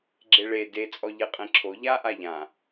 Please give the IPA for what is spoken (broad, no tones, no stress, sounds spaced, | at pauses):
ɡ͡ǁ e ɭ e d e t͡sʼ ɔ ʎ e qʼ ẽ ǁʰ o ʎ a ʔ a ʎ ã